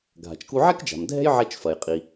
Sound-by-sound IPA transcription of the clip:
ɡʱa̤˩t͡ʃku˧ʕɛ˥kd͡ʒa̤˩m dʱɛ̤˥jʕɛ˧t͡ʃfɐ˩jqʼi˩

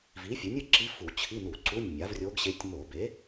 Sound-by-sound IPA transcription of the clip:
vi˩˥fʲu˩˥nʲɯ˥˨ǁi˧˥ fu˧˩˧t͡ɕʰi˧˥˧nu˧˩˧ǀu˧˥˧nʲ mʲa˩˥vrʲo˧˥ɡɕe˧˥tʲ mo˧˩˧be˩˥

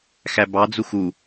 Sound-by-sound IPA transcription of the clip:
xæbɑ d͡zuxu

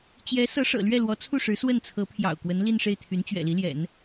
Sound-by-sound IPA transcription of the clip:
t͡ɕjɛ˧˥ sɤ˧˥ʂɤ̰˨˩lɥɛ˥˩lwɔ˧˥ t͡sʰu˥˩ʂɻ̩˧˥ swə˥˩nt͡sʰɤ˧˥pʰjɑ̰˨˩ʊ̯ kwə˧˥nli˥˧nʂe˥˩ɪ̯ t̪ʰy˧˥nt͡ɕɥɛ̰˨˩li˧˥ ljɛ̰˨˩˦n

